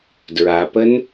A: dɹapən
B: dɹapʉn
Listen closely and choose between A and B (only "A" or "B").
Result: A